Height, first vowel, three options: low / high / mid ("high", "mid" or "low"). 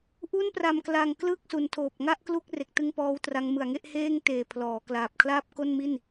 high